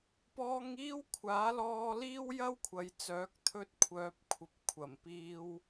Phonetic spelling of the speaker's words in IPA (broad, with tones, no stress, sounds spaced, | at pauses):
p ɔː˧ ŋ iː˥ w kʷʰ aː˨˥ l ɔː˧ l iː˥ w j ɐ˥ w kʷʰ ɐ˨ j t͡s œː˨˥ k̚ t̪ʰ ɵ˥ t̚ kʷʰ œː˧ p̚ kʷʰ ɐ˨˥ p̚ kʷʰ ɐ˨˩ m p iː˧ w